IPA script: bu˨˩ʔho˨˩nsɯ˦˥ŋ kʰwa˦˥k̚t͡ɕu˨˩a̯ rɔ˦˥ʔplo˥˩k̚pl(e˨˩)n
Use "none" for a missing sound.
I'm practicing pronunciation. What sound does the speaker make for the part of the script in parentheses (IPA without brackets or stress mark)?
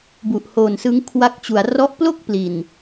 i˨˩